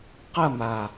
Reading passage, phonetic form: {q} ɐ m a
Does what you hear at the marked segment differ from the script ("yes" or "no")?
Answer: no